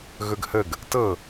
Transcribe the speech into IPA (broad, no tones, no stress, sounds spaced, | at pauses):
ɣ ɵ ɡ h ə ɡ | t ɤ